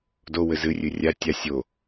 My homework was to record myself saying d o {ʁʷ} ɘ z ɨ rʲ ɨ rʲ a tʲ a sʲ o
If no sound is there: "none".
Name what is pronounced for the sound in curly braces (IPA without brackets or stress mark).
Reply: w